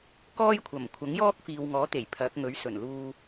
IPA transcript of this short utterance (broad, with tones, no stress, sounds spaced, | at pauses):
k ɔː˥ j kʷʰ ɐ˨˩ m kʷʰ ɐ˨˥ ŋ j ɔː˥ k̚ f iː˨ w ŋ ɔː˨˥ t̪ e˨˩ j pʰ ɐ˨˥ k̚ ŋ ɵ˨˥ ɥ s ɵ˨˩ n l uː˧